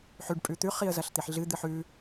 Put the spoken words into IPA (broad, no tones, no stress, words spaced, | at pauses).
ħʉɖ pʼʉt̪ʉ χiə̯zɐɬt̪iħɮɨ d̪ɨħʉ